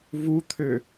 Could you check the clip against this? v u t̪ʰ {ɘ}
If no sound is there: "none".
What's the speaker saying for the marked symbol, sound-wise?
ø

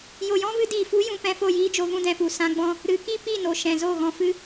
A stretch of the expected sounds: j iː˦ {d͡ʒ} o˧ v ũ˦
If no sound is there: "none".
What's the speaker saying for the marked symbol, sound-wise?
d͡ʒ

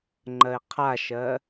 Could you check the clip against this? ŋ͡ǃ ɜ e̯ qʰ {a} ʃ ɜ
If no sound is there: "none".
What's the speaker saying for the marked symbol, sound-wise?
a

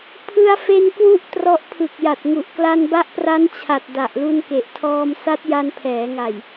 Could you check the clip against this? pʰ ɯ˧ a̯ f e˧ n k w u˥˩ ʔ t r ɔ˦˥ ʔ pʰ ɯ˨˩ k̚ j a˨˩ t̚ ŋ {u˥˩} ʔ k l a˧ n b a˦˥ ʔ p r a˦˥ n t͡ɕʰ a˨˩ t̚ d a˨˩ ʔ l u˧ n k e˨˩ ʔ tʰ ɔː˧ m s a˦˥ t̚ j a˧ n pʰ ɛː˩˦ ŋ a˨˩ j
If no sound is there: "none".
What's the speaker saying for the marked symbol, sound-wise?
u˨˩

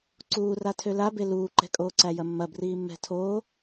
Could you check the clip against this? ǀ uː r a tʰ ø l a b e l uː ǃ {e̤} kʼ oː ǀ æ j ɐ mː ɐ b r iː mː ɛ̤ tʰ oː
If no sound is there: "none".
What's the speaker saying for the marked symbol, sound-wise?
ɛ̤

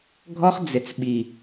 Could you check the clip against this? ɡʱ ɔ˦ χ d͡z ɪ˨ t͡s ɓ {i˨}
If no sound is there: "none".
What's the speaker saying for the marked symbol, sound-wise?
i˨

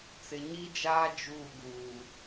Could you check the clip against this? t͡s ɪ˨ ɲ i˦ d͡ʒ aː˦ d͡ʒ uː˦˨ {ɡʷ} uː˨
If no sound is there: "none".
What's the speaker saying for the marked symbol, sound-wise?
ɡ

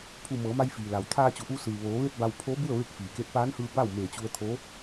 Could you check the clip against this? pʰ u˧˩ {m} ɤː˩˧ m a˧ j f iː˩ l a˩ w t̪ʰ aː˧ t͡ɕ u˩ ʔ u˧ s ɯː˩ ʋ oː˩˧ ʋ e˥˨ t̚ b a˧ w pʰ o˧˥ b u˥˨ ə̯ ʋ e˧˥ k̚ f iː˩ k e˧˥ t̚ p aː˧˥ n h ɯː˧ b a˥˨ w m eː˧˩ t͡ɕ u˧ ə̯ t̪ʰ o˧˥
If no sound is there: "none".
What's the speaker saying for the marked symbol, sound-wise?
m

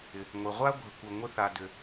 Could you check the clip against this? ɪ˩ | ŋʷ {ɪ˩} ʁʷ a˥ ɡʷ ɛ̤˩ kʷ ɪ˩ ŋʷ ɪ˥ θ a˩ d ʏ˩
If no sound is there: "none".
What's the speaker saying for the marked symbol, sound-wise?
ɪ˩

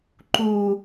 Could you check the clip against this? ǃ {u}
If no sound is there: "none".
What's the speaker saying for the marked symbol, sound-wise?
u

